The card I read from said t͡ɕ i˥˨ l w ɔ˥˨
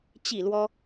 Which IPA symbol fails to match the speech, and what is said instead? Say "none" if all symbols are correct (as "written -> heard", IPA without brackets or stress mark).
ɔ˥˨ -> ɔ˦